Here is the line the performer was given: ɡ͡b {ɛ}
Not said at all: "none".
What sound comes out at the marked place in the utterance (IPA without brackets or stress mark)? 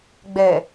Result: ɛ